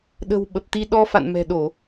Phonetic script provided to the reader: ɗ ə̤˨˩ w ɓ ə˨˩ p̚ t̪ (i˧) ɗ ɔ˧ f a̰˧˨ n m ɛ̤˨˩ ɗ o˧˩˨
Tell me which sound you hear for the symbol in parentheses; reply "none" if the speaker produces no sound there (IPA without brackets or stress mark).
i˧